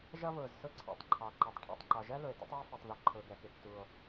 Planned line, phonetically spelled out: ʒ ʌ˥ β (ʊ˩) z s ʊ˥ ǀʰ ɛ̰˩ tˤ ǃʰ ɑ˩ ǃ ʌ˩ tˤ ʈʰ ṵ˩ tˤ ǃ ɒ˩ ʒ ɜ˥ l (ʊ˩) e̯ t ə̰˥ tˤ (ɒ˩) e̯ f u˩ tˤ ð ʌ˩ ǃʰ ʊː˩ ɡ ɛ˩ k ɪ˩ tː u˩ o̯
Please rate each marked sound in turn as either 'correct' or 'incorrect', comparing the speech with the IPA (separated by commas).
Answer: incorrect, correct, incorrect